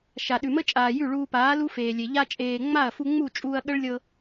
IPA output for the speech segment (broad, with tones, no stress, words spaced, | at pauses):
ʃa˨ɗʉ˨mə˦t͡ʃʼaː˨ jʉ˦˨ɭuː˧paː˨˦ lu˦feː˨lʲe˨ ʎa˧t͡ʃʼeː˨ ŋ͡ma˦˨ɐ̯fu˧ ŋ͡mu˦˨t͡ʃʼuː˧ɐ̯ɠə˦ɭlʲɤ˧